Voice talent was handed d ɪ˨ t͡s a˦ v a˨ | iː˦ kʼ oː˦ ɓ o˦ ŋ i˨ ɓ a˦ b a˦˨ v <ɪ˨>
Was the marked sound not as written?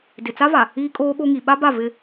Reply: yes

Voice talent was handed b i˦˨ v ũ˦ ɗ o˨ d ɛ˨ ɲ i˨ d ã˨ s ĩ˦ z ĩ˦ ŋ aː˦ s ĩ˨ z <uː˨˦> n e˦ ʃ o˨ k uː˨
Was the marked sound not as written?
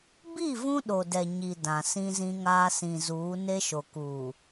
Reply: no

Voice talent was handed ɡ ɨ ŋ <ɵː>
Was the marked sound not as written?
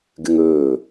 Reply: no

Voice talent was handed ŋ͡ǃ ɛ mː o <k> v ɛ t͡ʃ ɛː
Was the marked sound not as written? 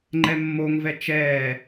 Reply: yes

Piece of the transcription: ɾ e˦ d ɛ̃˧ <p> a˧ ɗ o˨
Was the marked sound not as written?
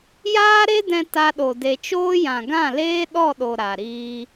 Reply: yes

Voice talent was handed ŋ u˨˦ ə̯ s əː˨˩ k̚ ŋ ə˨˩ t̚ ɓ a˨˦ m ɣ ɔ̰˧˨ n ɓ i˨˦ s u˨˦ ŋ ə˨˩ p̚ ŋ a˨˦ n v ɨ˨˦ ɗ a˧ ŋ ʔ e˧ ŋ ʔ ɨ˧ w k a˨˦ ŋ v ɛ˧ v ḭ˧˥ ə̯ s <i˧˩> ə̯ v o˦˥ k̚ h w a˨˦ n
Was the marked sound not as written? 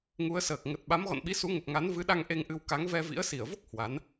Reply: no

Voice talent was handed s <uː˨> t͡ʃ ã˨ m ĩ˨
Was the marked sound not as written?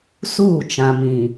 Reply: yes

